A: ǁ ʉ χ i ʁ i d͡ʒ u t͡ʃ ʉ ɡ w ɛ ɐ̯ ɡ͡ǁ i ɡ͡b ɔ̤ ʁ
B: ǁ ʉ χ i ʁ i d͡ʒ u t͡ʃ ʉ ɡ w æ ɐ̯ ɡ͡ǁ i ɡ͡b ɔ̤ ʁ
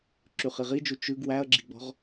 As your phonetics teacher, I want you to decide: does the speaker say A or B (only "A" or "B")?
B